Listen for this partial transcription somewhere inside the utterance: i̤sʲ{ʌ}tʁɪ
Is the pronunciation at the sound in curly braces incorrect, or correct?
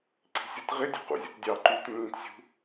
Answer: correct